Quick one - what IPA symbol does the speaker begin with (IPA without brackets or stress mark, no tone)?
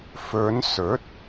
f